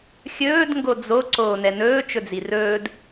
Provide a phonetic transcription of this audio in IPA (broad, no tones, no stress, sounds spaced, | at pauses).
xʲ ɵː d ŋ ɡ o d͡z o ǀ oː n ɛ n ɵː t͡ʃ ɵ d͡z i r ɵː d